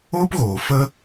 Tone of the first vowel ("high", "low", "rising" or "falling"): high